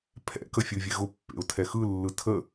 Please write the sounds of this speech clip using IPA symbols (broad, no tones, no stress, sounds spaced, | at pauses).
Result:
pʰ ɛ̰ k ə fʲ ɯ vʲ ɛ ɣ ʊ pː ḛ ʊ̯ tʰ ɛ x ɯ lː ɯ tʰ ə